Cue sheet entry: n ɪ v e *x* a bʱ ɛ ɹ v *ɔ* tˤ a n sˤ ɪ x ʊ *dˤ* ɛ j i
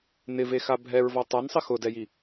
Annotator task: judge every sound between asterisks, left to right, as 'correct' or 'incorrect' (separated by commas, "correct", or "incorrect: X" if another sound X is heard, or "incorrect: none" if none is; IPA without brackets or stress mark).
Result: correct, correct, incorrect: d